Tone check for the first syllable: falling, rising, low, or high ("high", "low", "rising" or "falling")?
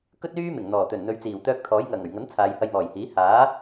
high